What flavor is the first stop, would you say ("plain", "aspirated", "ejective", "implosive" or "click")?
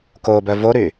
plain